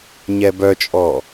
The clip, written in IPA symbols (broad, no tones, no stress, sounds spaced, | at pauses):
ɲ ɛ b œ t͡ʃʼ ɔ